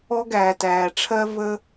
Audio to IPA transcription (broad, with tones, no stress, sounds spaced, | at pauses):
ɔ˧ ɡ æː˨ t æː˨ ʈ͡ʂʰ ɜ˧ v ə˧